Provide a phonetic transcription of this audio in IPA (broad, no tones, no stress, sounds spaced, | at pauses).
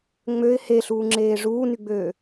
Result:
ŋ͡m ø ɪ̯ h e ɬ uː ŋ͡ǁ eː ʐ uː n y ɡ͡b øː